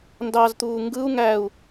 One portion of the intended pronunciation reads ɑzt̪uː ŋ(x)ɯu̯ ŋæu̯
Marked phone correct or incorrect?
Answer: incorrect: ɡ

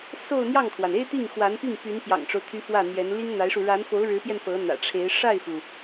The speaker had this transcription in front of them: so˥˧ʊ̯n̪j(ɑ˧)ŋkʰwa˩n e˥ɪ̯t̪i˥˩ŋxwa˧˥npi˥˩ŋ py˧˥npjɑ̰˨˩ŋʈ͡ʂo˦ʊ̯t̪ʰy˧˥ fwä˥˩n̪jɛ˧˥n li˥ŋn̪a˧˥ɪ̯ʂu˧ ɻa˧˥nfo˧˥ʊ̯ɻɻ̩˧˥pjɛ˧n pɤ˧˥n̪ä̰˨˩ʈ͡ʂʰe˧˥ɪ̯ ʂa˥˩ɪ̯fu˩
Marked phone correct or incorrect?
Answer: incorrect: ɑ˥˩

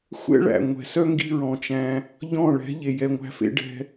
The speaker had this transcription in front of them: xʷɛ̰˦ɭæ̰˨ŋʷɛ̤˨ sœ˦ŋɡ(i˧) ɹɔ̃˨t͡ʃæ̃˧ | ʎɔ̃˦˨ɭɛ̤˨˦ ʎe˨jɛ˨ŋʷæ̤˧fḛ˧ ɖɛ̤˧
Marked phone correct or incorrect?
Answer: correct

